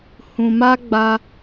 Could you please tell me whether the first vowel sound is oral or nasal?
nasal